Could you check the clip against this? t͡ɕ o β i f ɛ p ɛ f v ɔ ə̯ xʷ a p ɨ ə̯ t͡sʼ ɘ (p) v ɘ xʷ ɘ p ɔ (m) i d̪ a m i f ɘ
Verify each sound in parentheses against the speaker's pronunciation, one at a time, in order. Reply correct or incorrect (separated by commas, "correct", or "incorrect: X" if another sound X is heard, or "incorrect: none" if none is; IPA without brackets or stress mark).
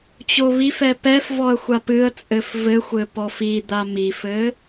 incorrect: f, incorrect: f